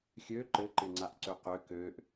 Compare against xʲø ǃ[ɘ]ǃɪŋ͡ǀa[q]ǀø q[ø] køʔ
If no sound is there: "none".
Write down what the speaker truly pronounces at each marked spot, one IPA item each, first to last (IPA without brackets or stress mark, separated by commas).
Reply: ɘ, ʔ, ø